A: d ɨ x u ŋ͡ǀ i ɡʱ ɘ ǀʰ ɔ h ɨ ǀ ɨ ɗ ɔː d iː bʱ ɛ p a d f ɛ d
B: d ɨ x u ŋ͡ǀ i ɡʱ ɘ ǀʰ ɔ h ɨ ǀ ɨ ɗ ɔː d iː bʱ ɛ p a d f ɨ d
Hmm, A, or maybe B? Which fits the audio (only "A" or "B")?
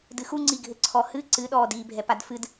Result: B